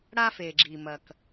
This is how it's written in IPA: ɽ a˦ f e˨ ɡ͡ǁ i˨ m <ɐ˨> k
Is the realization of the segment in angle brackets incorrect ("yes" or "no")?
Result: no